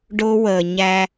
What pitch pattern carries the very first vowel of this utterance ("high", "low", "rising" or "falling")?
high